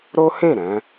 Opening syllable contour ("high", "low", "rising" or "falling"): high